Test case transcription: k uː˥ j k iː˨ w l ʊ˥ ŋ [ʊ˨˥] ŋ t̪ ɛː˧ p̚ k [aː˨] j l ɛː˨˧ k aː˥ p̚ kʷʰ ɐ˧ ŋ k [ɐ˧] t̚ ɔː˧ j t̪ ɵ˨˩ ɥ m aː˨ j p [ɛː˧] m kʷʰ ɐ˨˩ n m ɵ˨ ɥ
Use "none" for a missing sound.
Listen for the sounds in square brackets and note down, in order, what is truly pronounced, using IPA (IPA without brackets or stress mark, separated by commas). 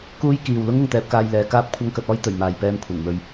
ʊ˨, aː˧, ɐ˧, ɛː˧